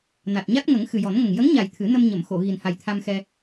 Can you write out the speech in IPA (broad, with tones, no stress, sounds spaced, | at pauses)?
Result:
n a˨˩ t̚ ɲ a˦˥ t̚ ŋ ə˨˩˦ ŋ x ɨ˨˩ j ɔ˨˩˦ n ŋ ə˨˩ ŋ j ə˧˥ ŋ ɲ a˨˩ j t̪ʰ ɨ˨˩˦ n ə˧ m ɲ ə˨˩˨ m x o˨˩˨ ɣ i˨˩ n h a˨˩ j t̪ʰ a˧ m x ɛ˧